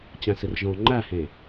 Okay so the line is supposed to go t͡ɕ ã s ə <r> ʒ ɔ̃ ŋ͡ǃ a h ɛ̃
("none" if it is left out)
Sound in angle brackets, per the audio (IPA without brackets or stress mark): r